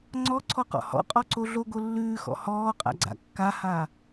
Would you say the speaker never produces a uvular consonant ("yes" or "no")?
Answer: no